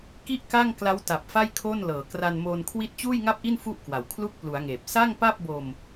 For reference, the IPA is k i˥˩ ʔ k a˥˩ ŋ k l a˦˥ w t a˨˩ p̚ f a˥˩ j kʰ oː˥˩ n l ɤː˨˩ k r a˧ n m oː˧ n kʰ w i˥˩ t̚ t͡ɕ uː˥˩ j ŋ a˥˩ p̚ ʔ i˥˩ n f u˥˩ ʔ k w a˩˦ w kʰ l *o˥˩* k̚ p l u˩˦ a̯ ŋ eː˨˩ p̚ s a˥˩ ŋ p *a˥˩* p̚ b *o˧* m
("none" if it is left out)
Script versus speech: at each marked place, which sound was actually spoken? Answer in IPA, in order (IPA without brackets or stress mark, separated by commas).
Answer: u˥˩, a˥˩, o˧